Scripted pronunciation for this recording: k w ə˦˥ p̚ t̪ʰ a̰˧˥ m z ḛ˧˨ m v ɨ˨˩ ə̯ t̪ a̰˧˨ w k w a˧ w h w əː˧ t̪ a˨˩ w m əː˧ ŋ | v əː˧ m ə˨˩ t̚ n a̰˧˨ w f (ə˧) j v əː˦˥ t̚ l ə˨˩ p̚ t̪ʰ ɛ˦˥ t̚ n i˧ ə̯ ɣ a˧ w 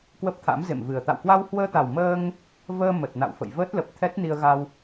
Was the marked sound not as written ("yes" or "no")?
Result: yes